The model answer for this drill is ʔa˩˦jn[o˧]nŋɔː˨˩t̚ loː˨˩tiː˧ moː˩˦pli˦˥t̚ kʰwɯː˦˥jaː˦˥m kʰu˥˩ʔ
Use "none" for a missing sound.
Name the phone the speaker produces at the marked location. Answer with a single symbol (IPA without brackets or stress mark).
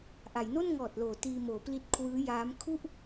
o˥˩